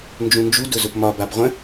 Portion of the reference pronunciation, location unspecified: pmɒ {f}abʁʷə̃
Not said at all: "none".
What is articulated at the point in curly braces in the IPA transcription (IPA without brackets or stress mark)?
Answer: b